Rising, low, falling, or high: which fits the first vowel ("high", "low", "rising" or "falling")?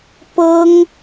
high